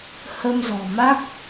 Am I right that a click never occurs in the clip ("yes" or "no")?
yes